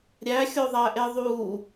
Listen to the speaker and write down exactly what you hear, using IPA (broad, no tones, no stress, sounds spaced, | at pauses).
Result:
ɾʲ æ xʲ o ðˤ æ ʔ e ðˤ u